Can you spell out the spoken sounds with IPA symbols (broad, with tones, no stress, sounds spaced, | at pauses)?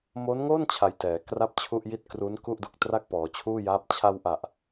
m o˦˥ n ŋ o˥˩ n t͡ɕʰ a˧ j t ɛː˩˦ k r a˥˩ p̚ t͡ɕʰ u˥˩ ʔ j i˥˩ t̚ k r u˦˥ n k u˥˩ ʔ d u˨˩ k̚ t r a˥˩ k̚ p ɔː˩˦ t͡ɕʰ uː˥˩ j aː˦˥ p̚ t͡ɕʰ a˧ w ʔ a˨˩ ʔ